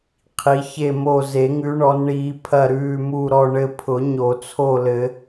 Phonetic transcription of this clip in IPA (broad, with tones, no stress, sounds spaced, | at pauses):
qʰ i˨˦ ç e˦˨ m o˦˨ z e˨˩˦ ŋ ʉ˨˦ ɳ ɔ˨˦ n ɳ iː˨˦ pʰ ɐ˦˨ ɾ ʉː˦˨ m u˦˨ ɾ ɔ˦˨ ɳ ɘ˦˨ pʰ ʊ˨˩˦ ɲ o˨˩˦ t͡sʰ o˦˨ l ɘ˨˩˦